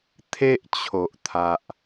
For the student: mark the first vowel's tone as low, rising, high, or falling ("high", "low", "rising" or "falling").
high